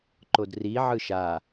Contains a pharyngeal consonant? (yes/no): yes